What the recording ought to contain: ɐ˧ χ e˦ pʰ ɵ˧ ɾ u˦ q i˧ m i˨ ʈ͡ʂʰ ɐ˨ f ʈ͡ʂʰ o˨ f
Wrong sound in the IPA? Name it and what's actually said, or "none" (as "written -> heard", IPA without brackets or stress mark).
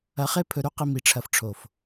none